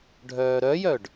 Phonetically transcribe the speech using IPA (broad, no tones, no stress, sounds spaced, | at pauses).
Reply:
ɖʱ œː ɾ œ j œ ɖ